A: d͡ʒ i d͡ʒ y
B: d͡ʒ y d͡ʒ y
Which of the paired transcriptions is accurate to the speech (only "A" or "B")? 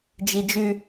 A